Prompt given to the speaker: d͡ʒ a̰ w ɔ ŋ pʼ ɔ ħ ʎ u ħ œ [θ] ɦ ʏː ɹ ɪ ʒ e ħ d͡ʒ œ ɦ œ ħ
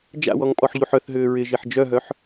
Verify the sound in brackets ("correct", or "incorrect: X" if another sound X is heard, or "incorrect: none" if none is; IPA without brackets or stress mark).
correct